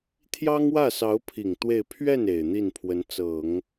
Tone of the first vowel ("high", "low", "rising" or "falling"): high